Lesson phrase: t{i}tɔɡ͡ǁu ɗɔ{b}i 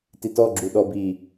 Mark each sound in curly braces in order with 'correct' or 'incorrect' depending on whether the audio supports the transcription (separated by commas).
correct, correct